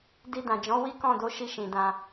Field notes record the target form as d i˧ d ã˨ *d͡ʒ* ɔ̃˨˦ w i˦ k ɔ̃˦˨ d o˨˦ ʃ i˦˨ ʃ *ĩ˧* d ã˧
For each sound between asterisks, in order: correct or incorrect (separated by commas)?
correct, incorrect